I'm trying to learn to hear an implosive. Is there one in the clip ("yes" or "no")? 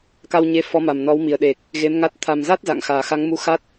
yes